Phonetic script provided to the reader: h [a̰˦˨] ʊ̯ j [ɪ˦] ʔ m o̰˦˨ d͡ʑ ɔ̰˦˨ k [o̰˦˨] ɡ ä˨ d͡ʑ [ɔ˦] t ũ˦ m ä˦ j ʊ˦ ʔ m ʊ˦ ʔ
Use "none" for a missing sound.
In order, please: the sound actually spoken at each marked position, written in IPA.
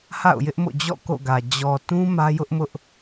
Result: a̰˦˨, ɪ˦, o̰˦˨, ɔ˨

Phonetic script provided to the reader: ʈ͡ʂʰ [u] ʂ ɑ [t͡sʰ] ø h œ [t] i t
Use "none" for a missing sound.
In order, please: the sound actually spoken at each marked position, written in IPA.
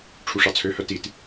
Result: u, t͡sʰ, t

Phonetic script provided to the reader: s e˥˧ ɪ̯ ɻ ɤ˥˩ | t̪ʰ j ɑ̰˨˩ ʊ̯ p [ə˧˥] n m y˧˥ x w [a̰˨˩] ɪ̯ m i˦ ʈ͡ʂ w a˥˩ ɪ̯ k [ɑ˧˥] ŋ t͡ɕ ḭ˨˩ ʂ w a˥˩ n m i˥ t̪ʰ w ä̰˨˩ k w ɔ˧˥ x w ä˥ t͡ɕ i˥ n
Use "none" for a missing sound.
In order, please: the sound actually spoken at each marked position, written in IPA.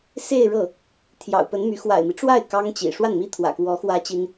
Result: ə˧˥, a̰˨˩, ɑ˥

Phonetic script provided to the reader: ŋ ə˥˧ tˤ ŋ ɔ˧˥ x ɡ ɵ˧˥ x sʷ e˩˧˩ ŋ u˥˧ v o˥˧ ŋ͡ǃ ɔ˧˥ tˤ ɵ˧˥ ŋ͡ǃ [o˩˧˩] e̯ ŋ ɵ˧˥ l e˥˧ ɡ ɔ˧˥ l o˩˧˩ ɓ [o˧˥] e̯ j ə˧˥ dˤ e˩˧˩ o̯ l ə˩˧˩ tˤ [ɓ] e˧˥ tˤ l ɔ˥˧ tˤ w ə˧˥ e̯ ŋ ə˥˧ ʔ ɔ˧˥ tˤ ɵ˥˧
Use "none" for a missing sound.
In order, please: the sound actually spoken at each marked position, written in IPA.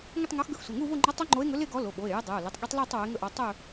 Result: o˧˥, o˩˧˩, ɠ

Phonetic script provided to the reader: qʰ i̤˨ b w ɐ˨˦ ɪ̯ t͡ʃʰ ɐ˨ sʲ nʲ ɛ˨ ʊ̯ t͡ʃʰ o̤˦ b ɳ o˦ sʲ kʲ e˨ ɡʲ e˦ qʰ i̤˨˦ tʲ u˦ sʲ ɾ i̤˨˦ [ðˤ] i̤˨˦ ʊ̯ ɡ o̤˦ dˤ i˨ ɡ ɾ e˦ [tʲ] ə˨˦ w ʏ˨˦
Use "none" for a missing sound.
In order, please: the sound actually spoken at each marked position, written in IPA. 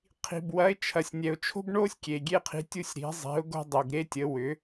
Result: zˤ, tʲ

